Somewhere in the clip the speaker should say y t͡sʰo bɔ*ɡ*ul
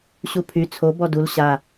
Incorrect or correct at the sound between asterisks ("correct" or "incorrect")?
incorrect